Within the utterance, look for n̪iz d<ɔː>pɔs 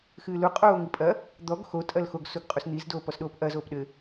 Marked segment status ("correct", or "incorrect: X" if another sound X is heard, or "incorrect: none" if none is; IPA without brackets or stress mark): incorrect: oː